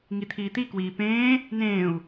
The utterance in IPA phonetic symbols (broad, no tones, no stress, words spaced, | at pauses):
ŋit̪ʰiːt̪ikwiː pẽː | nẽːu̯